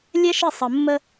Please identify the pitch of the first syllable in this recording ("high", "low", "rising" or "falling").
high